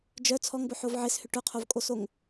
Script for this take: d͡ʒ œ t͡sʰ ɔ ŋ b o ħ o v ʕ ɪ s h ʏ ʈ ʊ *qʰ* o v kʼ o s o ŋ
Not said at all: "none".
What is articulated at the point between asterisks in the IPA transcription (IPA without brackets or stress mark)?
qʰ